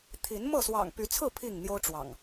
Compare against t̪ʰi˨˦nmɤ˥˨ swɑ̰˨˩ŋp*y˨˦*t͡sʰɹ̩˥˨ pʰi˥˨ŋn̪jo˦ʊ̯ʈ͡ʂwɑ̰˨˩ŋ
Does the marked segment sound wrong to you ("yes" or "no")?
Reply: no